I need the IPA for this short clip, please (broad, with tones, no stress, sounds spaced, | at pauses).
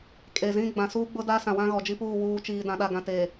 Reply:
kʼ e˨ z ĩ˦ ɡ͡b ã˨ s uː˦ ɡ͡b ʊ˦ d aː˦ s ã˨ w ã˦ ɣ ɔ˨ d͡ʒ i˦ p uː˦˨ w uː˨ t͡ʃ iː˨ d ã˨ ɗ a˨ ɡ ã˨ t eː˨